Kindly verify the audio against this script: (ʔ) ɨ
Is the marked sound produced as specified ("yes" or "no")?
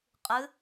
no